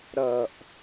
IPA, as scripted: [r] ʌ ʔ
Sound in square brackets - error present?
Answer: yes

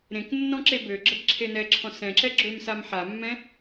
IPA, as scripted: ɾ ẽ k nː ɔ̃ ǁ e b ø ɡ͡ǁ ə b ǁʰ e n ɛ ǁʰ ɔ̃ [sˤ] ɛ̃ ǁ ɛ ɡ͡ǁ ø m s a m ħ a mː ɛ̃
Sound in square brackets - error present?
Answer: yes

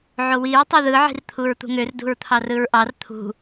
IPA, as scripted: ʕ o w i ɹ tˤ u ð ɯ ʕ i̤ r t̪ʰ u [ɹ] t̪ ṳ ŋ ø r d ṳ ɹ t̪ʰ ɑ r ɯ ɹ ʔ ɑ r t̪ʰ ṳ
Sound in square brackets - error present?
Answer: no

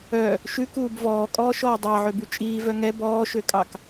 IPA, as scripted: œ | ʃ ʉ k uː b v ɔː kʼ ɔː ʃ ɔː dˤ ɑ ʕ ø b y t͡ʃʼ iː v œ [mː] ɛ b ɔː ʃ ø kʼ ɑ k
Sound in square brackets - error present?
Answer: yes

